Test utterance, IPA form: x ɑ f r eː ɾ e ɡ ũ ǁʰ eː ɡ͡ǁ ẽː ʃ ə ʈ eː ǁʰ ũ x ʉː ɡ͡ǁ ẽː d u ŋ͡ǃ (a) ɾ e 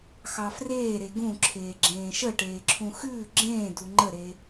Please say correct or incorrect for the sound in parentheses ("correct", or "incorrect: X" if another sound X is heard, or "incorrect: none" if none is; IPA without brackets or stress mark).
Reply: incorrect: ə